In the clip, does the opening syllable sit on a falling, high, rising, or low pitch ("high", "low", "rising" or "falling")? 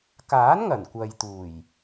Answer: rising